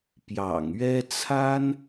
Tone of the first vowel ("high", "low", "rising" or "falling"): low